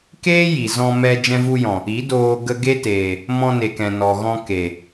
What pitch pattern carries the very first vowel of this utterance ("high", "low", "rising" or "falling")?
high